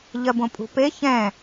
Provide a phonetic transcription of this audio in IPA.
ʎ ɜ b õ pʼ ṳ p e ç ɛ̃

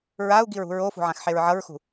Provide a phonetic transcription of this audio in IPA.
ɹ a u̯ ɡ i ɹ ṳ ɹ o f ṳ ʕ ã x ħ e ɹ ʕ ʌ ɹ x ṳ

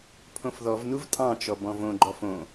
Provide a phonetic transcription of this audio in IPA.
pʰ õ f ð ɔ v n u v tʼ ɑ̃ t͡ʃ ɔ b ɔ̃ v õ ɡ͡ǃ ɔ f õ

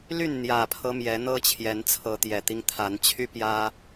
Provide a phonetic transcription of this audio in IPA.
l y˥˨ n n̪ j ä˨˩ pʰ ɤ˦ m j ɛ˨˦ n̪ ɤ˦ t͡ɕʰ j ɛ˨˦ n t͡sʰ ɤ˨˦ t̪ j ɛ˨˩ t̪ i˦ ŋ t̪ʰ a˨˦ n t͡ɕʰ y˦ p j ä˦

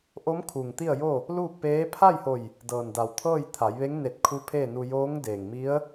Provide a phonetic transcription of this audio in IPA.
ʔ o˧˥ m kʰ u˩ ŋ t̪ i˥˨ ə̯ j o˥˨ | l uː˥˨ k̚ p eː˧˥ pʰ a˥˨ j h o˧˩ j | d ɤː˩ n d a˩ w t̪ʰ ɤː˥˨ j t̪ʰ a˩˧ j ʋ e˧˥ ŋ n e˧˩ t̚ kʰ u˧˥ pʰ eː˥˨ n u˧ j oː˧˥ ŋ d eː˩ ŋ m i˧˥ ə̯

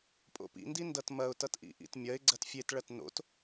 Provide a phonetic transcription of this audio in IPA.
pʼ o̰ p ḭ n d i n d ʌ t m ɐ ʊ̯ t ʌ t ʔ ḭ ʔ ḭ t mʲ ɐ ɪ̯ ɡ͡ǀ ɐ t fʲ e t ɭ ɐ t n o̰ t

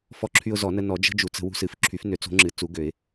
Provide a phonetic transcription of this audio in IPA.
f ɔ˦ ǁʰ y˦ ʊ̯ z ɔ˨˩˦ n ə˦ n ɔ˨˩˦ d͡ʒ ə̤˦ d͡ʒ u˨˩˦ t͡s ə̤˨˩˦ w ṳ˦ s ɨ˨˩˦ f ǁʰ y˨˩˦ f n ø˨˩˦ t͡s o̤˨˩˦ ŋ͡ǁ ɨ˨˩˦ t͡s u˨˩˦ ɡ ø˨˩˦ ɪ̯

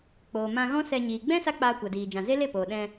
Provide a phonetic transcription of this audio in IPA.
k͡p oː˨ m ã˧ ɣ ɔ̃˦ s ɛ˧ ɲ iː˨ ɡ͡b ɛ̃˦ s a˦ k͡p aː˧ kʷ a˨ d iː˨ d͡ʒ ã˨ z e˦ l e˦˨ p oː˨ ɗ ɛ̃˧

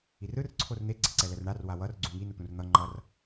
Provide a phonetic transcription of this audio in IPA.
i r ɯ r ǀʰ o r n̪ e ɡ͡ǀ ɛ ǀ ɛ l ɛ r ɳ a r w a w ʌ r ɡ͡ǀ ũ ŋ i n u t̪ ũ r n̪ ʌ ŋ͡ǃ ʌ r

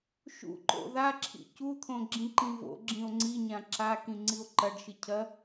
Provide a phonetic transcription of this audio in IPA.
ʃ ṵ ǃ o̰ ð a ǁʰ ḭ c u t̪ʰ õ ɡ͡ǁ ĩ ǃ ĩ v o̰ ɡ͡ǁ ĩ o̯ ŋ͡ǀ i ɲ ã ǁ a k ĩ ŋ͡ǀ i o̯ ǃ ɐ ɖ ʃ ɨ cʰ ɐ

